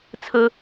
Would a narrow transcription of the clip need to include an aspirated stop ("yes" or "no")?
yes